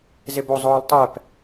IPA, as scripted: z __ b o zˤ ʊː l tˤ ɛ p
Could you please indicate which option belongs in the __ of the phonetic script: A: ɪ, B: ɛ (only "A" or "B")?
A